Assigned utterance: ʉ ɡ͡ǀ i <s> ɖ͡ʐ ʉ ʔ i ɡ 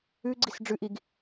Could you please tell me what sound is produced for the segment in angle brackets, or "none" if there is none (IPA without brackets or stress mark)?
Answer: s